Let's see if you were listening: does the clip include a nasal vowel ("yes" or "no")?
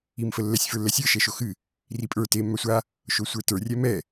no